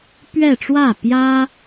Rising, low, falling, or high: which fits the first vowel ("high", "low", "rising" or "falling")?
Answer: falling